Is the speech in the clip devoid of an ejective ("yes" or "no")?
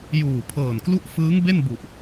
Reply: yes